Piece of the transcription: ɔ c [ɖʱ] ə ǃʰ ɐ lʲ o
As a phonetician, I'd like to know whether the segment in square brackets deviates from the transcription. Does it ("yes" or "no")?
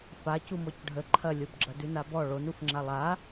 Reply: no